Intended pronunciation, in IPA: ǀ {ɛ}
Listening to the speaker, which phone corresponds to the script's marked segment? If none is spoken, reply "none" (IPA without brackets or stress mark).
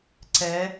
ɛ